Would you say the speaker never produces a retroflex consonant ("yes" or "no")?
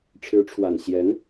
no